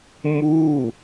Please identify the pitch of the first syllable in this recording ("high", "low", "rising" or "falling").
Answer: falling